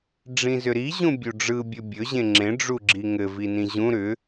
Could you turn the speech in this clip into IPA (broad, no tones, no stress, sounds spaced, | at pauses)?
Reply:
ɖ͡ʐ ĩ z ʏ ɾ i ʑ ũ bʲ u ɖ͡ʐ ɯ bʲ ɵ bʲ ɵ ʑ ẽ ŋ͡ǁ ẽ ɖ͡ʐ u ɡ͡ǁ i ŋ ɘ v i n ĩ ʑ ũ ɾ ʏ